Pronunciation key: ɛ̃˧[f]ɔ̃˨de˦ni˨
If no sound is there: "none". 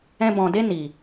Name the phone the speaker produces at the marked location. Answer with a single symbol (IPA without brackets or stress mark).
b